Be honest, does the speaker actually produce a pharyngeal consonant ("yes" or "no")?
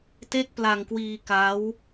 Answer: no